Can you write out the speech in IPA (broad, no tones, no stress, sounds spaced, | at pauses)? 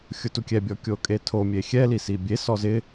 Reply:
xʲ ʊ t u kʲ ɛ bʲ ɔ kʲ o kʼ e tʰ o mʲ e xʲ ɛ l i s i bʲ e s ɔ z ɪ